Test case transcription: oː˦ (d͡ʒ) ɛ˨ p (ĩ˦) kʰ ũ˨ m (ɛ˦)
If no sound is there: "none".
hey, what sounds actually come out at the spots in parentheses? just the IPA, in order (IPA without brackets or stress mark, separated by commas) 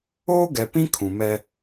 ɡ, ĩ˦, ɛ˦